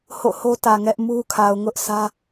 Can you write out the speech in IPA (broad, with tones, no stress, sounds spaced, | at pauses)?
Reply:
h o̰˦˨ h o˦ t ä˨ ŋ ɛ˦ ʔ m u˦ kʰ a˨ ʊ̯ ŋ ʊ˦ ʔ sʰ ä˦